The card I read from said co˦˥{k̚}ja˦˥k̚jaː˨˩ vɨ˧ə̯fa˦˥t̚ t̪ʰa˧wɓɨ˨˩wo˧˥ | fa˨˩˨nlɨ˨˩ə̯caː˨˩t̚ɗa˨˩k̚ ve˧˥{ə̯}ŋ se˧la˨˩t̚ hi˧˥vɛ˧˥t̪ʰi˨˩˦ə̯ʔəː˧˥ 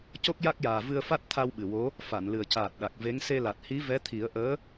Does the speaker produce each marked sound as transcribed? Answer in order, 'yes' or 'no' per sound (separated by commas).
yes, no